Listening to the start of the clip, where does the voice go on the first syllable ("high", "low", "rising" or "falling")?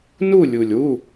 falling